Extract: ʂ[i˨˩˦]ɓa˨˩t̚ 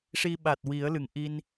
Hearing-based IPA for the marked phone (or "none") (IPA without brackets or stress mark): i˧